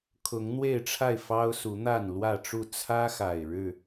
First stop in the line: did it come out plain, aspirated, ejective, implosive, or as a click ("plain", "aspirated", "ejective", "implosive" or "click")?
aspirated